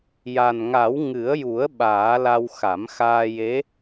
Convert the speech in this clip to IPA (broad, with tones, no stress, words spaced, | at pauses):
ja˨˩nŋa˨˩˦w ŋɨ˨˩˦ə̯ju˨˩˦ə̯ ɓaː˨˩˦la˧w xa˨˩˦mxaː˧je˧˥